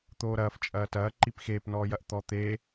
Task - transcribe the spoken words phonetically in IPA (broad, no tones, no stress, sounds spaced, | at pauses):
t̪ oː ɾ ɐː f t͡ʃʼ ɐː t ɐː ǃ i p x eː p n ɔː j ɐ ʔ t̪ ɔ t̪ e